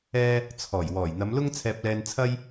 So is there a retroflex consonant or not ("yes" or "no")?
no